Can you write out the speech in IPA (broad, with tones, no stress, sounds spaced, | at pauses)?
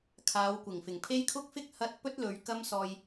kʰ aː˨˧ w kʷ ɪ˨˩ ŋ f ɪ˨˩ ŋ pʰ e˥ j kʰ ʊ˥ k̚ f ɪ˥ k̚ h ɐ˥ t̚ p ɵ˥ t̚ l ɵ˨˧ ɥ k ɐ˥ m s ɔː˧ j